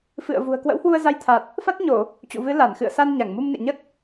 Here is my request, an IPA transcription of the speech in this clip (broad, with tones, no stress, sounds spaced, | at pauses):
f ɨ̰˧˨ ə̯ v ṳ˨˩ ə̯ k w ə̰˧˥ w h w u˧ ə̯ z a˧ j t̪ʰ a˨˩ t̚ | f a˦˥ t̚ ɲ o˧˩˨ | t͡ɕ ṵ˧˨ v ɨ˨˦ l a˧˩ n x ɨ̰˧˨ ə̯ s a˧ n ɲ a˧˩ ŋ m u˧ m n ḛ˧˨ ɲ ə˦˥ t̚